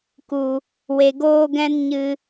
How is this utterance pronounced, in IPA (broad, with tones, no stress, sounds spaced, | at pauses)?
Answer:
k u˨ | w e˧ ɡ oː˦ ɡ ɛ̃˦ n ɲ ɨ˧